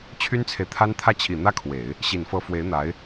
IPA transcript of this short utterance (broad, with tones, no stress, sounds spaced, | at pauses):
t͡ɕʰ y˥ n t͡sʰ e˨ ɪ̯ t̪ʰ a˥ n t̪ʰ ä˥˩ t͡ɕʰ i˨˩ n̪ ä˥ kʰ w e˨˩˦ ɪ̯ | ɕ i˨˩ n f ɤ˧˥ f w e˧˥ ɪ̯ n̪ a˧˥ ɪ̯